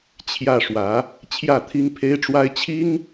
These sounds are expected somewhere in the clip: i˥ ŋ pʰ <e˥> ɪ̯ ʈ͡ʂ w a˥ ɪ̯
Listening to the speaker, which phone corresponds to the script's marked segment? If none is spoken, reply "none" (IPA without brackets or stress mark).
e˥